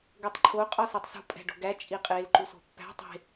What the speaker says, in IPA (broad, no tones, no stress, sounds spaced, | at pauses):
ɡ o tˤ ǃʰ o qʼ ɒ s i tˤ s ṳ pʼ æ̤ ɖ o̤ ɡ æ t͡ʃʼ i qʼ e l ǃ u s o̤ pː æ̤ tˤ e̤